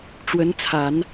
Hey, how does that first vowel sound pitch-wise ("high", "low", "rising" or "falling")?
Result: rising